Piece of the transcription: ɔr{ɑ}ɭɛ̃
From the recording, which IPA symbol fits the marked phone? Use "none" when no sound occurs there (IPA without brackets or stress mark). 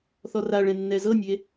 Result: a